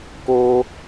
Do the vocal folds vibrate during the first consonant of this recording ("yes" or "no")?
no